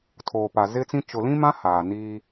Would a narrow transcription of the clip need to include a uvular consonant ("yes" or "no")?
no